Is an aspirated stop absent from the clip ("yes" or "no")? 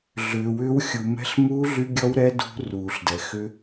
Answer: yes